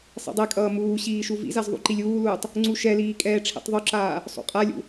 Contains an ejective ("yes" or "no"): yes